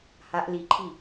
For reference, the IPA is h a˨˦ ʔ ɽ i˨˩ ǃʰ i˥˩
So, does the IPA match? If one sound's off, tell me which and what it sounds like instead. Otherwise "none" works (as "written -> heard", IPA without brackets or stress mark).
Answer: ɽ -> l